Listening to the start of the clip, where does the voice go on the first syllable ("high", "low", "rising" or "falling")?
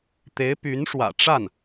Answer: rising